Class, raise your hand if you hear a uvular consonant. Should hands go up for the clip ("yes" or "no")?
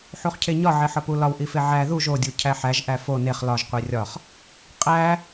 yes